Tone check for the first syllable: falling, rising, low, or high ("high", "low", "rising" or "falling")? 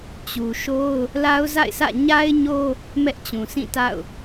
low